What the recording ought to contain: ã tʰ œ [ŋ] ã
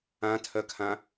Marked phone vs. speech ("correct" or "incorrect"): incorrect